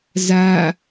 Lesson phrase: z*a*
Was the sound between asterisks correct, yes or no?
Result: yes